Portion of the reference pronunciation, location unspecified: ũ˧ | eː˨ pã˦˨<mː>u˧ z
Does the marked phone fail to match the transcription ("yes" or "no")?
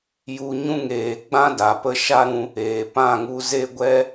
yes